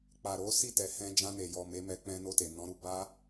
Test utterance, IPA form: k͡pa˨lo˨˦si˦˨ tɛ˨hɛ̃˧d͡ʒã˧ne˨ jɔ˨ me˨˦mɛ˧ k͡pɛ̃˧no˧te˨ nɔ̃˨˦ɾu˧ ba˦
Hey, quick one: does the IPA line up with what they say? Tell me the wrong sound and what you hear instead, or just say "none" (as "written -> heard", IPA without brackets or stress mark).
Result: l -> ɾ